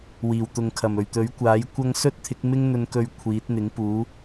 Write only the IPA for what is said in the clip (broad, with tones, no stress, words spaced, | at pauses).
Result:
wiː˨˩wt̪ʊ˨ŋkʰɐ˨˩mɵ˨˩ɥ t̪ɵ˨˥ɥkʷaː˨˥jkʷɐ˥ŋ sɵ˥t̚t̪ʰɪ˨˥k̚ mɪ˥ŋn̪ɵ˧nkɵ˧ɥ kʷʰiː˨˥t̚n̪ɪ˨˥ŋpuː˨˥